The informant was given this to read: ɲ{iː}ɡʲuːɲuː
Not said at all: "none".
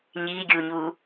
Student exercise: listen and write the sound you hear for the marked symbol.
iː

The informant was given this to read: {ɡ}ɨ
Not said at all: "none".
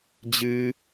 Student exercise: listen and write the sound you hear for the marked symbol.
d͡ʑ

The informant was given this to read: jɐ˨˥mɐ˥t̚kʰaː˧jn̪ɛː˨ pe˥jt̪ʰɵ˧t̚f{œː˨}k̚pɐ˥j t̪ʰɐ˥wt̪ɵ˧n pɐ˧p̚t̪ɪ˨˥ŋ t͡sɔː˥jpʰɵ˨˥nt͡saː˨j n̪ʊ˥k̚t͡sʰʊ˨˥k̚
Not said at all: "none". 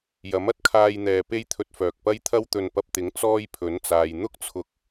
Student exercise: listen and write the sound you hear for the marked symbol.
œː˨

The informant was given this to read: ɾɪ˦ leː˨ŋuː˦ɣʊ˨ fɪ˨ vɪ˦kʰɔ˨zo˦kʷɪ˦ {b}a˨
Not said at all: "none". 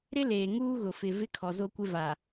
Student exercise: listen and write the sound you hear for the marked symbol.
v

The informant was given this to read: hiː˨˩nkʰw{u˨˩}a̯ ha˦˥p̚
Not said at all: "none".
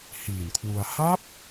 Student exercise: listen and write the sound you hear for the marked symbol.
u˧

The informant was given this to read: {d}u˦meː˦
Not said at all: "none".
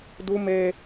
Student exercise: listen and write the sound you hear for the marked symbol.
d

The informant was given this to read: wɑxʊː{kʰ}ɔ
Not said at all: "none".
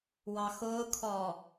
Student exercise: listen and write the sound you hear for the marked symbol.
kʰ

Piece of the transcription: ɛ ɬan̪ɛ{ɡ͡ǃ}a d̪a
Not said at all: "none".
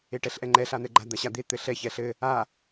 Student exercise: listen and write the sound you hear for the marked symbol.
ɡ͡ǃ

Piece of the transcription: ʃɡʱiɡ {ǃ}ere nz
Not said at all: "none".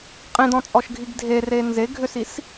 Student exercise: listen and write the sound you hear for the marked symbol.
dʱ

